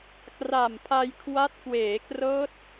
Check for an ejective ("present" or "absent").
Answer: absent